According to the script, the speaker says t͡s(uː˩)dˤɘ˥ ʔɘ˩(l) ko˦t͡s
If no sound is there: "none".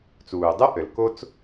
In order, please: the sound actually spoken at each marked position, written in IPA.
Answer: uː˩, l

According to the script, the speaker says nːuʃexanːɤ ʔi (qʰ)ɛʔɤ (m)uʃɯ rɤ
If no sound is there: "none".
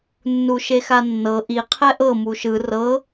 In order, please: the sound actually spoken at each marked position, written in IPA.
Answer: qʰ, m

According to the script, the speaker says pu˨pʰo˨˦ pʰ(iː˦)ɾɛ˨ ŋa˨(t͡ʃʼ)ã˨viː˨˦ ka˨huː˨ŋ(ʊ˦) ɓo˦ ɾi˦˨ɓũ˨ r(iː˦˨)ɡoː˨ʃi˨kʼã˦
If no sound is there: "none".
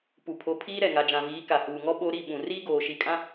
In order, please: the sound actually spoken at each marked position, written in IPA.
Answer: iː˦, d͡ʒ, ɔ˦, iː˦

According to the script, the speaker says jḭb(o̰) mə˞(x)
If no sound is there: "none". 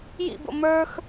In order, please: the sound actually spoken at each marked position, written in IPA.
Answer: o̰, x

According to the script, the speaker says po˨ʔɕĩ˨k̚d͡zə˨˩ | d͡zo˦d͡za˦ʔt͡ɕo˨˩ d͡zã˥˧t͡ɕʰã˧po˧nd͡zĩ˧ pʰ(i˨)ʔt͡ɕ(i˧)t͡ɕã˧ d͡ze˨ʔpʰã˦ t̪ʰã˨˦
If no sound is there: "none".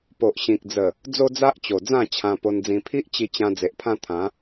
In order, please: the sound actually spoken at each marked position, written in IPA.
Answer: i˦, i˧

